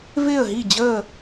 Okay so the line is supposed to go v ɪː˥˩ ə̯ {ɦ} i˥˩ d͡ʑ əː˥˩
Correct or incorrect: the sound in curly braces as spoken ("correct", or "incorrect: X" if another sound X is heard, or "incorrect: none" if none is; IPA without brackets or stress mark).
correct